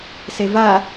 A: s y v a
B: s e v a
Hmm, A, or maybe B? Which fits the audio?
B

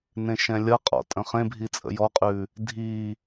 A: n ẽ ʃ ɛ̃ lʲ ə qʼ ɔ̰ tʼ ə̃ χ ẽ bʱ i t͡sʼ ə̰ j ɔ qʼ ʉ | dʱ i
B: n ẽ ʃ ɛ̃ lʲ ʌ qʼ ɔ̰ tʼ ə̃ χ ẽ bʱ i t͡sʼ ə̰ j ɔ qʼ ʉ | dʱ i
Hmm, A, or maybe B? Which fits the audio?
B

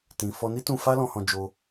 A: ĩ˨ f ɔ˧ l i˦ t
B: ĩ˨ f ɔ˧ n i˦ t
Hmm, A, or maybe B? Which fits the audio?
B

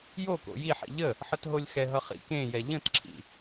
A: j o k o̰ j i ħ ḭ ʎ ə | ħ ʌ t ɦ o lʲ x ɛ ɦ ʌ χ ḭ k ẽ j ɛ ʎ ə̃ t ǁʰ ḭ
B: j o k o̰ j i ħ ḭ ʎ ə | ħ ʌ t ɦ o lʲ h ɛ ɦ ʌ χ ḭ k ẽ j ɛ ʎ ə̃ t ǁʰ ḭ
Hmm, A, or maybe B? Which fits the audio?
A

